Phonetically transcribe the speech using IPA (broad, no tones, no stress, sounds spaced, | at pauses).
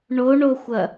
ɳ o ɳ o xʷ ɐ